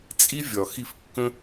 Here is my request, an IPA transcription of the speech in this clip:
t͡sʼ i˦ vʲ ɒ˨ x i˧ f kː ə̃˦

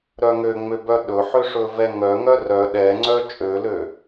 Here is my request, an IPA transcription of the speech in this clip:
ɾ œ ŋ ø ŋ͡m ø b œ ɗ ɵ ħ ø ʂ ɵ v ɛ ŋ œ ŋ œ r œ ɗ ɛ ŋ͡ǀ œ t͡ʃʼ ø l ø

